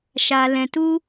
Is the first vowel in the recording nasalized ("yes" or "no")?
no